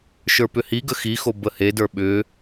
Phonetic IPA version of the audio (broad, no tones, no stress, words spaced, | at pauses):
ʃə˞pʏhiɡə xixo bəhedə˞ ɓʏ